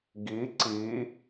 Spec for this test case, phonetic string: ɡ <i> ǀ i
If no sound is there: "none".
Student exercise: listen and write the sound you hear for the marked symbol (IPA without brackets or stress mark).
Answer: i